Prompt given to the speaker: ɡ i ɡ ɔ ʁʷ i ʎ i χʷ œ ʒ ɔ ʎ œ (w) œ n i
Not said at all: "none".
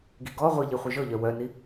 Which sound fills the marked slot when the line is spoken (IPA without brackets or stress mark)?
w